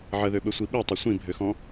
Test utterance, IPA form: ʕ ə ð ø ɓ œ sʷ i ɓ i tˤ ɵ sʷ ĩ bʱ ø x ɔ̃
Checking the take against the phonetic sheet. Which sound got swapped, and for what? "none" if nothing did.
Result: œ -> ɵ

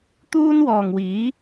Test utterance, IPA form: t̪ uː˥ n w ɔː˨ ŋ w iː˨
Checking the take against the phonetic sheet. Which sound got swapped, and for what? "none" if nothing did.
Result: iː˨ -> iː˨˥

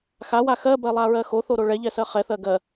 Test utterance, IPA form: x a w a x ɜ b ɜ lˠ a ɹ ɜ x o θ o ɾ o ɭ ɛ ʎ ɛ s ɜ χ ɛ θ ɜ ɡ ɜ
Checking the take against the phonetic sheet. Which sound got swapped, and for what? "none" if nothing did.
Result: none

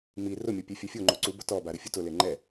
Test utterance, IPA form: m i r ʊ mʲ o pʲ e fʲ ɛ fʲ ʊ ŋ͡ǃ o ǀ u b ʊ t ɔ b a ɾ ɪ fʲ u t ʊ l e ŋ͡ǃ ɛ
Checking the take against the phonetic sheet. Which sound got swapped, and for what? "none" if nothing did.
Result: none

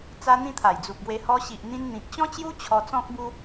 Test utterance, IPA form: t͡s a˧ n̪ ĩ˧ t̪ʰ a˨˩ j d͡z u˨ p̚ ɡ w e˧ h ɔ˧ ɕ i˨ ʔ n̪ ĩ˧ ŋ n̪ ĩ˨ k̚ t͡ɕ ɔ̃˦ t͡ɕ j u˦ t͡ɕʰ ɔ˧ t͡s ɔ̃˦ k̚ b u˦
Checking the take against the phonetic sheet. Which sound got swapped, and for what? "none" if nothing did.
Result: ŋ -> n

